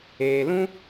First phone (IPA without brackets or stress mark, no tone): eː